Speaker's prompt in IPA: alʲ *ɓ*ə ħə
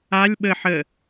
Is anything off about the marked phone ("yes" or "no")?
no